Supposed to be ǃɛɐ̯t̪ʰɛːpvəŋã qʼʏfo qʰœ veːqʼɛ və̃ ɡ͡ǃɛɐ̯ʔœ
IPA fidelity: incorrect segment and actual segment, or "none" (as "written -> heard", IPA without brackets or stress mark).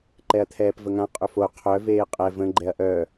none